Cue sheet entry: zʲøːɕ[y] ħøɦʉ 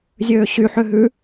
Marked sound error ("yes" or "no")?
no